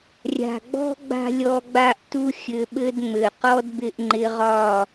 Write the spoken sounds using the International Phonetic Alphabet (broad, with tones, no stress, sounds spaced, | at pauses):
rʲ a̤˨ ɡ͡b ɔ̤˦ ɡ͡b a̤˦ lʲ ɔ˧ ɡ͡b a˦ ʔ t u˦ xʲ ɘ˧ ɓ ɘ˦ d ŋ͡m ɘ˨ q ɔ˦ d b ɪ˧ ʔ ŋ͡ǃ ɪ˧ ʁ ɒ˦˨